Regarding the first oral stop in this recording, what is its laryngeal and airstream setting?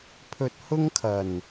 aspirated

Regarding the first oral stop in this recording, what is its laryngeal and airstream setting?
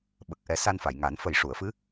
implosive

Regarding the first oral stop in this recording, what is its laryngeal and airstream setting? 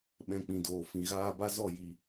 implosive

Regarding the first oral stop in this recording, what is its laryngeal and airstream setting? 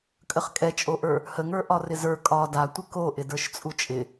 ejective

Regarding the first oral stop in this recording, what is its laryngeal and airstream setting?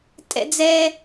ejective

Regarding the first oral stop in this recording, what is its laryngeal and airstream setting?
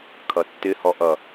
aspirated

